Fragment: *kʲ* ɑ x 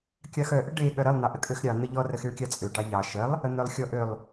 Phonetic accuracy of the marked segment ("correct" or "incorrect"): correct